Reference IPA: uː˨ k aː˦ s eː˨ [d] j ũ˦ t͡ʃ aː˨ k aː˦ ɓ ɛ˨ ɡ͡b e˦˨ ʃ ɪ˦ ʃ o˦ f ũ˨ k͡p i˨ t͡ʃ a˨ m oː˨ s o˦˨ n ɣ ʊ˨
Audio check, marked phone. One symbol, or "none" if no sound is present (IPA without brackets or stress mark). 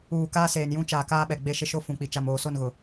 n